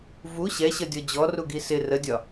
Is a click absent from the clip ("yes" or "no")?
yes